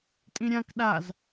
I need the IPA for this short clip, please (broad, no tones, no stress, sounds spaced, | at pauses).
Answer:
tʼ ĩ ɾʲ ã k ɗ a z